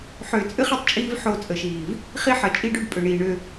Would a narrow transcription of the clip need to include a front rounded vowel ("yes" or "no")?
yes